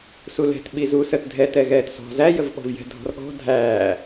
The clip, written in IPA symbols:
s u l ɛ̤ t ɓ i z uː s ə t dʱ ɛ t ɛ ɣ ɛː t s ɔ̤ z æ j ə v ɓ ɔ̤ v j ɛ̤ dʱ ɔ̤ r ɠ ɔ̤ dʱ æː

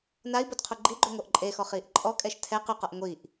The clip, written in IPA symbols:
n a i̯ b o d qʰ o ɡ͡ǃ i ɡ͡ǃ ø ŋʷ œ ʔ ǃʼ e x ɔ χ iː ʔ ǃʼ ɔ kʼ ɛ ʃ tʰ ɛ q y q ɔ ʔ ŋʷ i ʔ

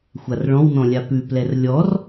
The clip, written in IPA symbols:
xʷ a r ɭ ɔ̃ w n ɔ̃ lʲ a p ʉ p l ɛ r lʲ ɔ r

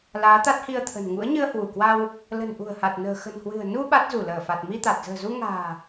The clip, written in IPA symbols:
l aː˨˦ t̪ a˦˥ t̚ h i˧ ə̯ t̪ʰ ə̤˨˩ n ŋ ṵ˧˥ ə̯ ɲ ɨ˧ ə̯ h w u˧˩ k w a˧ w | l ə̤˨˩ n ʔ ṳ˨˩ ə̯ h a˨˩ t̚ n ə̤ː˨˩ x ə̤˨˩ n h w ɨ̤˨˩ ə̯ n u˧ ɓ a˦˥ t̚ z u˧˩ l əː˧˩ f a˨˩ t̚ m i˧ t̪ a˨˩ t̚ z ə̤ː˨˩ z u˧ ŋ a̤ː˨˩

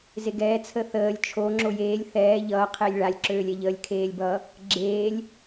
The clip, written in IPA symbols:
z e ɡ ɛː t͡sʰ ə θ əː lʲ t͡ʃʰ o ŋ͡ǁ o j eː lʲ θ ɛː ʎ ʌː qʰ eː lʲ ɭ a lʲ ǁ øː lʲ ɛ ʎ əː lʲ kʰ eː lʲ b ʌ | ɡ͡ǁ eː lʲ

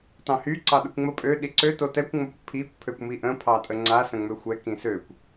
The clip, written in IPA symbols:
t ɑ̃ h y ǀ ɑ ɗ ə kʷ ŋ͡m ə pʼ ø ɗ i ǀ ø t o t ɛ kʷ ŋ͡m o kʷ pʰ i kʷ pʰ ø kʷ m i ʔ ə̃ pʰ ɑ tʼ ə ŋ͡ǀ a s ə̃ ŋ͡m ø xʷ ɛ k ĩ s ø kʷ

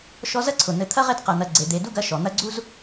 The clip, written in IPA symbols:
ʃ ɔ˦ z ɐ˥ ǀʰ ʊ˩ n̪ ɘ˨ t̪ʰ ɐ˥ ʁ e˦ d q ɐ˨ n̪ ɐ˨ ɡ͡ǀ e˩ d̪ e˨ d u˥ ɡ ɐ˦ ʃ ɔ˩ n̪ ɐ˦ ɡ͡ǀ u˥ z

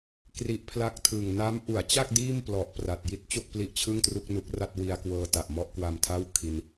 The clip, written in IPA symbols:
k r i˦˥ ʔ pʰ l a˥˩ k̚ tʰ ɯː˨˩ ŋ n a˦˥ m ʔ u˩˦ a̯ t͡ɕ a˥˩ k̚ d iː˥˩ m p l ɔ˨˩ ʔ p r a˨˩ t̚ j i˥˩ t̚ t͡ɕ o˥˩ k̚ p l i˦˥ ʔ t͡ɕʰ ɯ˥˩ ŋ t r u˥˩ k̚ n u˦˥ k̚ r a˥˩ t̚ w i˧ a̯ k w ɤː˧ t a˨˩ ʔ m ɔ˥˩ ʔ k w a˧ m tʰ a˥˩ w kʰ i˧ n

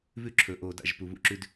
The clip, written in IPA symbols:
β ʉ˦ ǁʰ ɵ˨˦ ʔ oː˨ d a̰˦˨ ʒ p u˨ β ṵ˦ ǁ ʉ˦ d

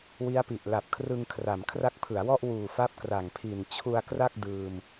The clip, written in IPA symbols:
w i˦˥ a̯ p i˨˩ ʔ l a˨˩ p̚ kʰ r ɯ˧ ŋ kʰ r a˩˦ m kʰ r a˦˥ k̚ pʰ ɯ˩˦ a̯ w ɔ˥˩ ʔ w uː˨˩ f a˦˥ p̚ k r a˨˩ ŋ pʰ i˨˩ n t͡ɕʰ u˧ a̯ k r a˥˩ k̚ d ɯː˧ m

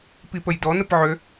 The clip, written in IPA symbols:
p i p ə j d ɔ n ə p ʕ ø

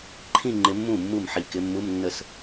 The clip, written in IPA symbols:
ǃʰ ĩ˥˧ ŋ͡ǃ ɪ˨˦ mː ũ˥˩ mː u˥˩ m ħ i˨˩ k ɪ˨˦ mː u˧˥˧ m nː ə˥˩ s

